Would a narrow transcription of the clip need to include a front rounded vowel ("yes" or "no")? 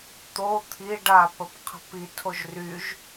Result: yes